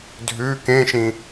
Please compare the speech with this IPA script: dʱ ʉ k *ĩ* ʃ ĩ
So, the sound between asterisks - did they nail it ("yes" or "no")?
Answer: no